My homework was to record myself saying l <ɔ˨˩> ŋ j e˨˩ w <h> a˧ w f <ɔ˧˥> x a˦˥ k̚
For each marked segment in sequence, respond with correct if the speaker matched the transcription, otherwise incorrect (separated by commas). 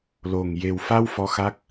incorrect, incorrect, correct